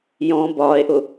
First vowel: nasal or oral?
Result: nasal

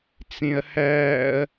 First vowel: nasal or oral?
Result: nasal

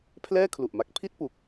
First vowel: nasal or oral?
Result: oral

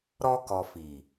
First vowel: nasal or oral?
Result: oral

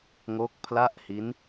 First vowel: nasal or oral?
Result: oral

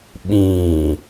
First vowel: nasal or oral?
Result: nasal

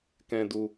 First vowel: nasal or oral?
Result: nasal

